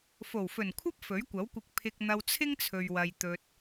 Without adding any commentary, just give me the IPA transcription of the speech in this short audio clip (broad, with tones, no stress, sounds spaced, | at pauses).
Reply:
f o˨˩ w f ɵ˨˩ n kʷʰ ɐ˥ p̚ f ɵ˨˥ ɥ kʷ ɐ˨˥ w kʷ ɪ˧ k̚ pʰ ɪ˧ k̚ n̪ ɐ˧ w t͡sʰ ɪ˥ ŋ t͡sʰ ɵ˨ ɥ w ɐ˨ j t̪ ɵ˧ t̚